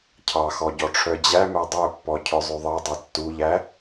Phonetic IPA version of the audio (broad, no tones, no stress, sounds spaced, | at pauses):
cʰ ɑ x ɔ ɟ ɔ ʈ͡ʂʰ œ d͡ʑ æ m æ dˤ œ pː ɔ cʰ œ zˤ ʉ ðˤ ɑ dˤ œ tː u ʎ æ